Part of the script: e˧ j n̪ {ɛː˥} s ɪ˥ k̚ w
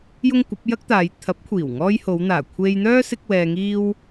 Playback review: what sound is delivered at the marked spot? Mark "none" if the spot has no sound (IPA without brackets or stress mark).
œː˥